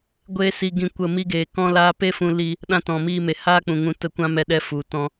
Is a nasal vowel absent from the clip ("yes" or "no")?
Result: no